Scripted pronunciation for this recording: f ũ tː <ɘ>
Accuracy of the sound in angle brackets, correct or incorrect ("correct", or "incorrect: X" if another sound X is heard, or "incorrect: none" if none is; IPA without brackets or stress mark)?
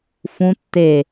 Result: incorrect: e